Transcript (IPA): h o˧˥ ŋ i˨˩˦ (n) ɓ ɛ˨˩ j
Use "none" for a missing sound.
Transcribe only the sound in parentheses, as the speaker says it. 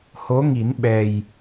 n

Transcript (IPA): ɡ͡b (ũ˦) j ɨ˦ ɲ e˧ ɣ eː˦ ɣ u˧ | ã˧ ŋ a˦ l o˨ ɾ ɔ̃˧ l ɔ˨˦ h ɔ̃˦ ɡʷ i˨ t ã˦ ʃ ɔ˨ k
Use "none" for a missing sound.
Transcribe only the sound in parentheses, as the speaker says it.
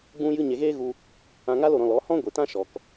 ũ˦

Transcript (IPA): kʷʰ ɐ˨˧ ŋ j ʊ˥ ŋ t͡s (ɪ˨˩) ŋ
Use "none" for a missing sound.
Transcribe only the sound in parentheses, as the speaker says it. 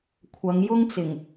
ɪ˨˩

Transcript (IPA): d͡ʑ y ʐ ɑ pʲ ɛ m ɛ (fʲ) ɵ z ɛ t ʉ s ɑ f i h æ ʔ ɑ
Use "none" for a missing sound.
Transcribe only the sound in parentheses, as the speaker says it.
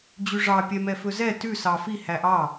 f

